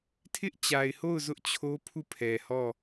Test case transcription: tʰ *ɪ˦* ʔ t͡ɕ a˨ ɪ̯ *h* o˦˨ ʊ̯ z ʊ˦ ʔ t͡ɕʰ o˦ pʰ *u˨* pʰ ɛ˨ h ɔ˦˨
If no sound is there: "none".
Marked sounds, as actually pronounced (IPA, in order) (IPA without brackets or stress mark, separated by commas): ɪ˦, h, u˦˨